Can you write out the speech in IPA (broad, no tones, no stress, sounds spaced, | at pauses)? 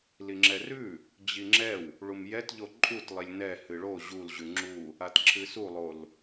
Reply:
l i ŋ͡ǁ ɛ r ʉ | d͡ʑ i ŋ͡ǁ ɛ w | ɭ u m j ɛ t ʎ o ǃʼ u t lˠ i lʲ n ɛ h ɨ ɭ o ʑ u l ʑ ʉ ŋ͡ǁ u | a t ǁʰ ɨ s u lˠ o l